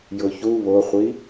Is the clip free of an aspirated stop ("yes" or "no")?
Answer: yes